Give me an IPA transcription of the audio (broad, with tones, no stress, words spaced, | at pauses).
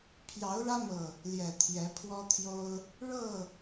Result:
pʰjɑ˨˦ʊ̯ɻä˦mɤ˨˩ | ljɛ˨˩t̪ʰjɛ˨˦pʰwɔ˦t̪ʰjo˦ʊ̯ | ɻɤ˥˨